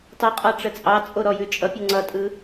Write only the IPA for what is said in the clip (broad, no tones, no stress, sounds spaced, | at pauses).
tˤ o qʼ ɑ ʈ͡ʂ ə t͡sʼ ɑ t͡sʼ o ɾ ɔ j ʉ t͡ʃʼ ʌ pʲ ɯ ŋ͡ǀ ʌ tʼ ɯ